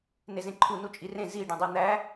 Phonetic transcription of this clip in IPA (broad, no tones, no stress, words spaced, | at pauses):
nezẽǃʰu nut͡ʃʼirẽ zi ɖĩdˤen̪æ